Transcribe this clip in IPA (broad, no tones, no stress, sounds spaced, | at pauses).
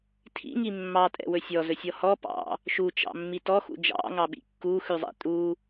tʰ ḭ ŋ i mː ɑ tʼ ɛ̰ w ɵ sʲ ɔ z ɵ sʲ ɔ h ɔ p ɑ̰ | ʃ u t͡ʃ ɑ̰ mː i t ɔ x ṵ d͡ʒ ɑ̰ ŋ ɑ ɓ ḭ kː u x ʉ zˤ ɛ̰ tʼ u